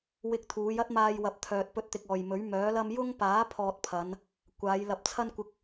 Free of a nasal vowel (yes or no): yes